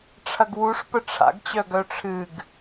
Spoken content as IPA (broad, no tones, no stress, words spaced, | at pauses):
ʈ͡ʂʰɐɡwuʂ pəʈ͡ʂʰa̰ɡt͡ɕœ ɡœʈ͡ʂʰɨɡ